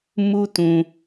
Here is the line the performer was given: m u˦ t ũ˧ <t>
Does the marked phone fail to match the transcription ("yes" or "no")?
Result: yes